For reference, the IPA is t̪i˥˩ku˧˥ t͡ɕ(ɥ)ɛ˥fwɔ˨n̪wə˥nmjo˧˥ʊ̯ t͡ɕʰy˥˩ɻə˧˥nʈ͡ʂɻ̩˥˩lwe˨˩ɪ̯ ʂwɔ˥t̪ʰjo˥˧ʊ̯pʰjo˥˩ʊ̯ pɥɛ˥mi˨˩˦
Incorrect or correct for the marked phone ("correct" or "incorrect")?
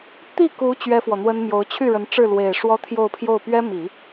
correct